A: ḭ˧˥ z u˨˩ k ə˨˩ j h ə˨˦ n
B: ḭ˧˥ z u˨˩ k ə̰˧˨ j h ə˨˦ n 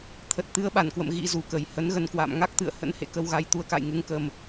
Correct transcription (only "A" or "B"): A